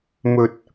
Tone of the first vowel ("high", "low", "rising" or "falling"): low